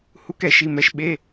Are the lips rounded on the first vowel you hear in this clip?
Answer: yes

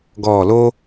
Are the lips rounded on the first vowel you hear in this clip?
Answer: yes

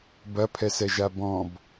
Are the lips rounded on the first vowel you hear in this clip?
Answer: no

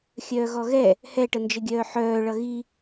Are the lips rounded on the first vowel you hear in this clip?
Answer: yes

